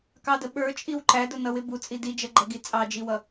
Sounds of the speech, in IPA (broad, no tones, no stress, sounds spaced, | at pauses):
k ɑ d ə ɓ ə˞ t͡ʃʼ i w ǃ æ d ʊ n ʌ w ɪ b u t͡sʼ i d i d͡ʒ ʌ ɡ͡ǃ ʌ ɡ i t͡sʼ ɑ d͡ʒ i w ʌ